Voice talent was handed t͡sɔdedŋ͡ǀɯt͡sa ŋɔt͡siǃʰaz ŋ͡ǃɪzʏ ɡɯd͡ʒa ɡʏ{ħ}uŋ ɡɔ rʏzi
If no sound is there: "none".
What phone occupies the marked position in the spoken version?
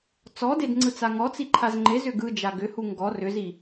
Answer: h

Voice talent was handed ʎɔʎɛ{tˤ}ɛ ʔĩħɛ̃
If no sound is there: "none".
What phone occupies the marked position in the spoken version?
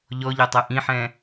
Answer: tˤ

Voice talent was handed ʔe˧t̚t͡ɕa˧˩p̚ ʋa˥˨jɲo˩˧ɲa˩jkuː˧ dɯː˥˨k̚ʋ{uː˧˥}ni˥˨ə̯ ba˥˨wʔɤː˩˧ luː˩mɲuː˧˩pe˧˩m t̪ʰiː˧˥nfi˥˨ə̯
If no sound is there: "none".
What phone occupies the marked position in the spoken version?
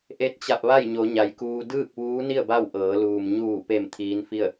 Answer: uː˧˥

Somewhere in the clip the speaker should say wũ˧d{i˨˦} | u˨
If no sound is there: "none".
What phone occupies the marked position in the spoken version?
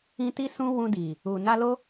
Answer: i˨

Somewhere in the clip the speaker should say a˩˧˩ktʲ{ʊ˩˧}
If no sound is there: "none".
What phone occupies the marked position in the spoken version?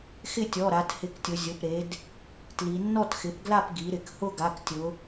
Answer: ʊ˩˧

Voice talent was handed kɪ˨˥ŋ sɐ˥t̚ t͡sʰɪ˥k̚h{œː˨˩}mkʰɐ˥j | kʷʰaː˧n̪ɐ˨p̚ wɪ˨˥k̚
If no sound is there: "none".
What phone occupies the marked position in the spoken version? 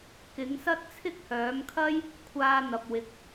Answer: œː˨˥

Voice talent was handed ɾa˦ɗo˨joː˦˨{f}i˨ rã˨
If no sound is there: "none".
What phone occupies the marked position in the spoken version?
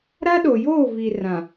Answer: v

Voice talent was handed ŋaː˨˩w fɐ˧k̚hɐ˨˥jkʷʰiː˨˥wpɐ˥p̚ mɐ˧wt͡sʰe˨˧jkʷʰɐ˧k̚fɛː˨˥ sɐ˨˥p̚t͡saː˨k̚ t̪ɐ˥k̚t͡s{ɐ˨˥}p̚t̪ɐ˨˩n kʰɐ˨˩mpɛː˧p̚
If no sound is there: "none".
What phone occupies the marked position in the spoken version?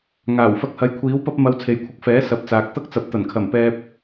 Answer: ɐ˨˥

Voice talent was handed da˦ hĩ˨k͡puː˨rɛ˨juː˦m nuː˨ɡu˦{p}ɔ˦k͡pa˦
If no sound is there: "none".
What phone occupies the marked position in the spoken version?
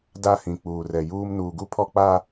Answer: pʰ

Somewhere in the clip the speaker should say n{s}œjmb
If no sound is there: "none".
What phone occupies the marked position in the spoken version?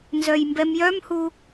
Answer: z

